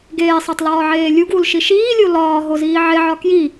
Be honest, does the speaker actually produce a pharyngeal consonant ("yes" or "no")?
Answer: yes